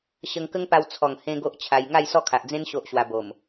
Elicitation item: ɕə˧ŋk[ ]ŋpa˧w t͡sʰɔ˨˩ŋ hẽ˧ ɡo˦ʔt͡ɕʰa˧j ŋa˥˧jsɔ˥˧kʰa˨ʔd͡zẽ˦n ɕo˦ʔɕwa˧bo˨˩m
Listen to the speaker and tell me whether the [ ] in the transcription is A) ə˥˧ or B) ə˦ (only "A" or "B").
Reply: B